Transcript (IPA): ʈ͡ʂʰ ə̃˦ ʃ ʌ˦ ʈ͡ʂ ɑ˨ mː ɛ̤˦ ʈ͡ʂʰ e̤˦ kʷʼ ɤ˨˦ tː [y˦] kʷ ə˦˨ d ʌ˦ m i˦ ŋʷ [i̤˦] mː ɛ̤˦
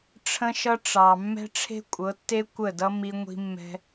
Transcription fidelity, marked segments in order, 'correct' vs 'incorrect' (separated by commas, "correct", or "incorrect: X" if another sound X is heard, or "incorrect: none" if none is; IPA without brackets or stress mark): incorrect: e˦, correct